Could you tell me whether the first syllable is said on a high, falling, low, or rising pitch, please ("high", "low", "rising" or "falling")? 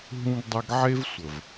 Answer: high